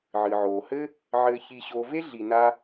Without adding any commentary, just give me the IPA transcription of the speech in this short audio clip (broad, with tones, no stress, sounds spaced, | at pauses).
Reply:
ʕ ɨ˩ ʕ oː˩ h ɘ˥ | ʕ ɘː˨ ç i˨ ɕ oː˨ v e˥ ɮ i˨ n a˦